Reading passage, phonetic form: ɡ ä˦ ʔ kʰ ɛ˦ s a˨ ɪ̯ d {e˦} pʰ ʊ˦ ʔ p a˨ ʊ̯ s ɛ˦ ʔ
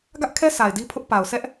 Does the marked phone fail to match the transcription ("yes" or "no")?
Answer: yes